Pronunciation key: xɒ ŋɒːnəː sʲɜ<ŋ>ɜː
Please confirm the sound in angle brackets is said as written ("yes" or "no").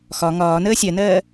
no